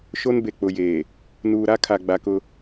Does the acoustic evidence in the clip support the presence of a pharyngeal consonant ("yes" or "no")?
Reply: no